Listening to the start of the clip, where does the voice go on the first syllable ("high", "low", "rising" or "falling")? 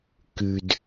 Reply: low